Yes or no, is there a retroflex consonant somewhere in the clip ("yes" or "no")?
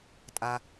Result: no